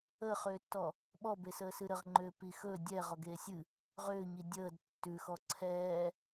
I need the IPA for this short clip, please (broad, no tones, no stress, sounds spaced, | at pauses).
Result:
ə χ ʏː tː ɔ | ɓ ɔ b e s əː s ɨ ɾ ə ʁ ŋ͡ǃ ʏː p i x ɵ dʲ ɛ ʁ ɔ ɡ eː sʲ ɨ | ʁ ʏː ɲ i dʲ əː d tː ʉ x ɔ ǀʰ ɛː